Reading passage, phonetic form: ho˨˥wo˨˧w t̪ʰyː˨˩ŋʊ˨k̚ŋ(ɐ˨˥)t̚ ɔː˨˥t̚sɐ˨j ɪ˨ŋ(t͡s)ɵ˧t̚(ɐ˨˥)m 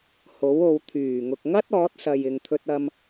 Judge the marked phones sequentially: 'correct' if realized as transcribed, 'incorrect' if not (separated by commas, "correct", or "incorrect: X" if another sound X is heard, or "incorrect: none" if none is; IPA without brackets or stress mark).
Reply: incorrect: ɐ˥, incorrect: t̪ʰ, incorrect: ɐ˧